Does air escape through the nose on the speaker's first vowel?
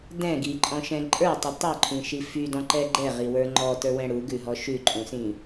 yes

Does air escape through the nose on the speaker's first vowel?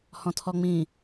yes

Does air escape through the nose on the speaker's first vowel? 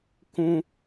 yes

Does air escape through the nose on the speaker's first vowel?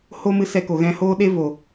no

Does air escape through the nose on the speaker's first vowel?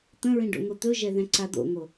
yes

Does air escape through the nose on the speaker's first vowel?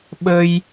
no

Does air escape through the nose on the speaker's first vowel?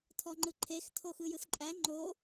no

